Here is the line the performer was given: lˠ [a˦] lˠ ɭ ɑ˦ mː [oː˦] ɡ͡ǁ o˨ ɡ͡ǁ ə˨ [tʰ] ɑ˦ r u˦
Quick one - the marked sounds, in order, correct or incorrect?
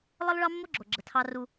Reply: incorrect, incorrect, correct

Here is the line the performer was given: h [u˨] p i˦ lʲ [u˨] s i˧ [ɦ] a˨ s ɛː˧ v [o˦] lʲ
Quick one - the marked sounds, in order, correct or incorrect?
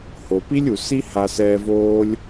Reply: incorrect, correct, incorrect, incorrect

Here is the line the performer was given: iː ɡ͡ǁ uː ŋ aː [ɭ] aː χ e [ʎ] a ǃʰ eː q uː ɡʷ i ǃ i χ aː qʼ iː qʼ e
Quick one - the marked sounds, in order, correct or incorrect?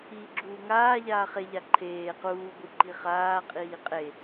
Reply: incorrect, correct

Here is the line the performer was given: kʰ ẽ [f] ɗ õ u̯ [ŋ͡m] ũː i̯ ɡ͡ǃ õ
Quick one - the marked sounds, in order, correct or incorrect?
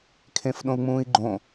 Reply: correct, correct

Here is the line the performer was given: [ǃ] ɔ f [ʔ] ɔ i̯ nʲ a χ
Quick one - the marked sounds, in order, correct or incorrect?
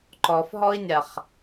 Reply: correct, incorrect

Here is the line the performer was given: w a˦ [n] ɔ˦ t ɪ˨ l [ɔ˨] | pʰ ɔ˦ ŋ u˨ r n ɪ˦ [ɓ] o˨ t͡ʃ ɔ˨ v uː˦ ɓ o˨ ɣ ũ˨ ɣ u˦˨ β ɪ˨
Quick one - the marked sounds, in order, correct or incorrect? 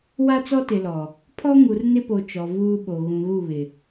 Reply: incorrect, correct, incorrect

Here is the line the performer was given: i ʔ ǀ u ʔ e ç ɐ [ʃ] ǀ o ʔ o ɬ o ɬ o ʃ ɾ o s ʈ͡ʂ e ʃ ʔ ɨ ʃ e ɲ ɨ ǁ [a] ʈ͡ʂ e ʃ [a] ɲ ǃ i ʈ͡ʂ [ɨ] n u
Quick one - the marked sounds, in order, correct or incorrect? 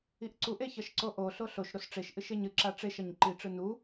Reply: correct, correct, incorrect, correct

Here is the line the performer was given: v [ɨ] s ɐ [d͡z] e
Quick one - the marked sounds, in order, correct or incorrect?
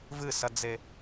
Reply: correct, correct

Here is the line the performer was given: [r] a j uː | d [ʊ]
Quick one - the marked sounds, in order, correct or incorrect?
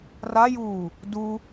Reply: correct, incorrect

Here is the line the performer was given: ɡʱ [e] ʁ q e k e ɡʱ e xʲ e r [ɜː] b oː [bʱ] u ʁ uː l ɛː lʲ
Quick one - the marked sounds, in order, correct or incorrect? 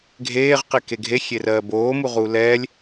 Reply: incorrect, correct, incorrect

